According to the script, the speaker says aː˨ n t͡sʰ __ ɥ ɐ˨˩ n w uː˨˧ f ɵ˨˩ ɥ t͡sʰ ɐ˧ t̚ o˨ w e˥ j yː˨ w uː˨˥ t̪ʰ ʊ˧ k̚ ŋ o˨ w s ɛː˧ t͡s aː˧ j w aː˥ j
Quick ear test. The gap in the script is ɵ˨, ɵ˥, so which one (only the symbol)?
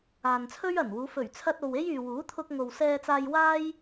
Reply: ɵ˥